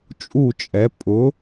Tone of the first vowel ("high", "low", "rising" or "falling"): falling